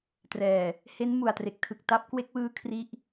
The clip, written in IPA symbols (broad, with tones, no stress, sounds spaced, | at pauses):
t r ɛː˨˩ | h e˦˥ n m u˨˩ a̯ t r e˨˩ k̚ tʰ ɯ˨˩ k̚ t a˦˥ p̚ k w e˦˥ k̚ w ɯː˦˥ kʰ r i˥˩ ʔ